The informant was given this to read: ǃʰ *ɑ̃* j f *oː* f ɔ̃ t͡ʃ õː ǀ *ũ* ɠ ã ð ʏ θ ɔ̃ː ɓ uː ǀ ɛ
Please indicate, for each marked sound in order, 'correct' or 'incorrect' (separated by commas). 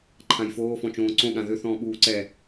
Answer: incorrect, correct, incorrect